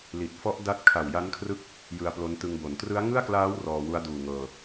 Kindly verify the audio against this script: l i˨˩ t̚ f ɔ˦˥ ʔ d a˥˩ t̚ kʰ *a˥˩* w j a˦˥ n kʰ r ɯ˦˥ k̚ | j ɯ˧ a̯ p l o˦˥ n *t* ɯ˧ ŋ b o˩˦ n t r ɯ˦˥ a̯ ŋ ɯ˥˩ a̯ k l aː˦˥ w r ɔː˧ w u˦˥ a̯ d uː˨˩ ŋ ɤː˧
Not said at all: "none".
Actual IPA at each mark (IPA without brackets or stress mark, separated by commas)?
a˨˩, t